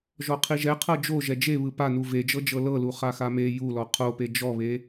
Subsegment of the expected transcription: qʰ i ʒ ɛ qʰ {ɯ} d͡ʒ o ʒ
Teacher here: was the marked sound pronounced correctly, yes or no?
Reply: no